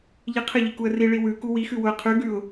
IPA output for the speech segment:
ʎ i qʰ ɘ ʎ i k u ə̯ r i ɭ i w ʉ k u w i x ʉ w ʊ ə̯ qʰ ʉ ɡ ʉ ʊ̯

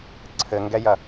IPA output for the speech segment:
ǀʰ ɘ ŋ ɡ ɛ j ɐ

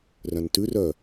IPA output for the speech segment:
r œ̃ n t ʉ r œ

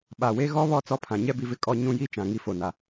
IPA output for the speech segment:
ɓ a˨ w e˦ ɣ ɔ˦ β ɔ˦˨ t͡s ɔ˦ pʰ ã˨ ɲ ɛ˦ b i˨ v ɪ˦ kʼ ɔ˦ ɲ ũ˦ j i˦ t͡ʃ ã˨ ŋ i˦ f o˨ n a˨

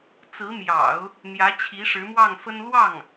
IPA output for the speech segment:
t͡s ɹ̩˧˥ m j ɑ̰˨˩˦ ʊ̯ | n̪ j ä˧˥ t͡ɕʰ i˧˥ ʂ ɻ̩˧˥ m w ɑ˥˩ ŋ f ə˥ n l w ɑ˥˩ ŋ

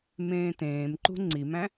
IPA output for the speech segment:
m ẽː t ẽː m ǃ ṳ ŋ͡ǀ i m æ̃

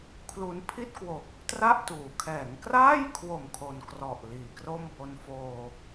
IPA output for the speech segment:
kʰ l u˧ n pʰ i˥˩ t̚ k w o˨˩ k̚ | t r a˥˩ ʔ t uː˩˦ kʰ ɛː˩˦ ŋ k r aː˥˩ j kʰ w o˨˩ m kʰ o˧ n k r ɔ˨˩ ʔ l iː˩˦ k r o˥˩ m b o˧ n f oː˧

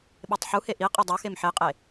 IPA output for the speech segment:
ɓ e tˤ ħ u h e ʔ i qʼ i dˤ o x e m ħ e qʼ e

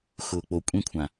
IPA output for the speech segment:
x ʊː˨ k͡p o˨ kʷʼ ĩ˧ kʷʰ ã˨

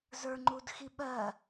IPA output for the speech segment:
z ə˞ ŋ͡ǃ u d x i ɓ ɜ

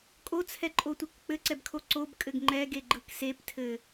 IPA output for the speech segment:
kʼ o t͡sʰ ɛ ǃʼ o tʷ e k k͡p ɘ ǀ ɛ b kʰ o ǀ o b kʼ ɘ ɡ ŋ͡ǃ ɛ ɡ e ɡ͡ǃ ɯ k s e p tʰ ɘ

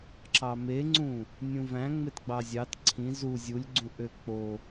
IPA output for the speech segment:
ǁ ɑ m e ŋ͡ǀ ũ | nʲ ũ v æ̃ ŋ͡m e t ɡ͡b ɑ zʲ ɑ t ǀʰ ĩ z u zʲ u lʲ ɡ͡ǀ ũ ʔ ø k͡p o

